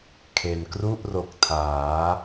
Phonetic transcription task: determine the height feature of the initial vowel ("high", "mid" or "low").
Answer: mid